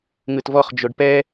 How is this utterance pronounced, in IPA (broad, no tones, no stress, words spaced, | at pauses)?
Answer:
ŋɯtvɔχ d͡ʒoɖpɛ